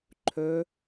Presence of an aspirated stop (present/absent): present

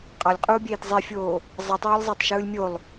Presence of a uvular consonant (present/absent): present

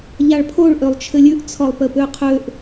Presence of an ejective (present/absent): absent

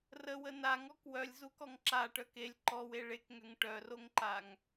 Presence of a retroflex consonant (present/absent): present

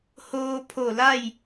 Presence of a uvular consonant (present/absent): absent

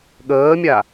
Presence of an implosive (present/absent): present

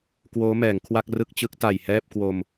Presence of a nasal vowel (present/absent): absent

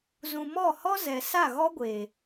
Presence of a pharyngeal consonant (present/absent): absent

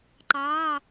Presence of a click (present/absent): present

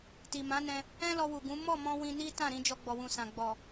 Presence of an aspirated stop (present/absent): absent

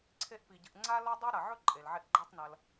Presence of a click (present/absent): present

